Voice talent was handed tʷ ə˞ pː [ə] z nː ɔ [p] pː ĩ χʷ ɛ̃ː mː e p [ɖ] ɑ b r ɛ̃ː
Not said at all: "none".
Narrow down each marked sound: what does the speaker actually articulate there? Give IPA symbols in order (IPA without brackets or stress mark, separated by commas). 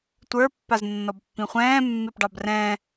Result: a, b, ɖ